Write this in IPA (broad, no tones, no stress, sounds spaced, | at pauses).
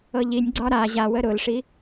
ɤ ʎ i nʲ ɡ͡ǀ ɒ ɾ a ʑ a w ə ɾ ʊ l ʂ i